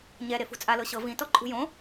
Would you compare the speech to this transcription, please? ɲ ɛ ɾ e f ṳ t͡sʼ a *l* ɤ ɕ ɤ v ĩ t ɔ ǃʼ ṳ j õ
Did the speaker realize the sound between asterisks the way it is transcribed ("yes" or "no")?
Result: yes